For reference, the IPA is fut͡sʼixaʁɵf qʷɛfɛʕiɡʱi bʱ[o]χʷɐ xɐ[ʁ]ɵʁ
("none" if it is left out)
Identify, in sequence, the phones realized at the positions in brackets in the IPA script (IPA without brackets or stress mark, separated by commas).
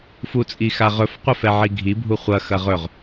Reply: u, ʁ